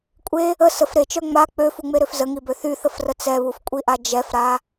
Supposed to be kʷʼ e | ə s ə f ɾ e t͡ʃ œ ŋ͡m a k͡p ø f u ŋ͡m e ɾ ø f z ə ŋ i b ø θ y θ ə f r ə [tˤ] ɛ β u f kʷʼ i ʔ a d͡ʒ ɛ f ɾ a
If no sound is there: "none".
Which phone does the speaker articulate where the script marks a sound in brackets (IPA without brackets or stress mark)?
t͡s